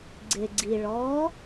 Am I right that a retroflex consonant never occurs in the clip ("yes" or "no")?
no